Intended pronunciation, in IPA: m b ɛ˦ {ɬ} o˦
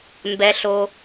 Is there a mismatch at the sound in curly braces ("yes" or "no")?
no